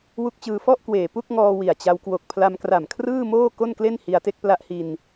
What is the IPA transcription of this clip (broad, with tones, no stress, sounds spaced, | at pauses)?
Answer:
w u˦˥ k̚ t͡ɕ ɯː˧ f ɔ˥˩ ʔ k w eː˨˩ p u˥˩ k̚ ŋ ɔː˧ w i˨˩ a̯ t͡ɕ a˧ w k w o˨˩ k̚ pʰ l a˧ m k r a˨˩ m kʰ r ɯː˥˩ m oː˥˩ k o˥˩ n k l e˥˩ n h i˧ a̯ t e˥˩ k̚ p l a˦˥ ʔ h i˧ n